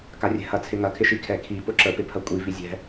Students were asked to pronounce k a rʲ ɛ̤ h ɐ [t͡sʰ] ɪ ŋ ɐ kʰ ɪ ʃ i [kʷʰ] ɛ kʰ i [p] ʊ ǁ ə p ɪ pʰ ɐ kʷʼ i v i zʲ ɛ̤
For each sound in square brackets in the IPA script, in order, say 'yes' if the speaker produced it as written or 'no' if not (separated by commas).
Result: yes, no, yes